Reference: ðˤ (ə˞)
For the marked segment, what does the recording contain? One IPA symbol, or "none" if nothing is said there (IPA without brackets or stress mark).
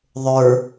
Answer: ə˞